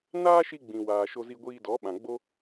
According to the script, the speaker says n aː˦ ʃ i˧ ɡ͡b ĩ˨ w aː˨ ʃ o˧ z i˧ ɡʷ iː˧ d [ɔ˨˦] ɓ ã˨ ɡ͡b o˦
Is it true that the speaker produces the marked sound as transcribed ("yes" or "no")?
yes